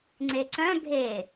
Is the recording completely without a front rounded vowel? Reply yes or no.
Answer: no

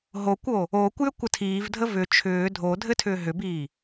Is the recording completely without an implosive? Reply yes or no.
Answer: yes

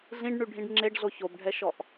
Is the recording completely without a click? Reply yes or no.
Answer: no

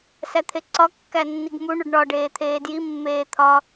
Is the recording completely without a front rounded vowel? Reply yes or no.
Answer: yes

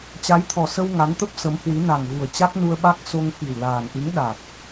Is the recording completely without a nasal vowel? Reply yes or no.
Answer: yes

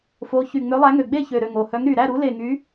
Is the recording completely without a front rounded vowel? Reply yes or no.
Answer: no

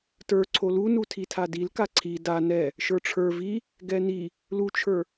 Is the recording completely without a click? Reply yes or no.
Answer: no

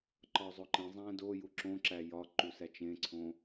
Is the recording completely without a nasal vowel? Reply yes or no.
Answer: no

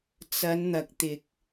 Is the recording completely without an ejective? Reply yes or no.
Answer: yes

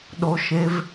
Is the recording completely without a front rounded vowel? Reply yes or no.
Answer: yes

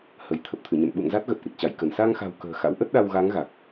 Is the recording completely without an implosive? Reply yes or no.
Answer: no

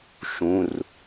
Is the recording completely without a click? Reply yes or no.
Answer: yes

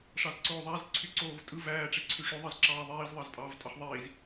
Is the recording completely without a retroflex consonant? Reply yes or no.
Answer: no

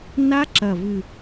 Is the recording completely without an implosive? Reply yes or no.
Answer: yes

